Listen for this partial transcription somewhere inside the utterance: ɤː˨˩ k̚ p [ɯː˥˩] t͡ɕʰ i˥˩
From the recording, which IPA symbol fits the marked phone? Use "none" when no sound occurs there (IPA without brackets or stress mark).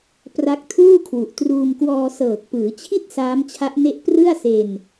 ɯː˩˦